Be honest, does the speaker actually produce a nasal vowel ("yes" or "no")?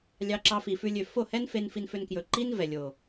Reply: no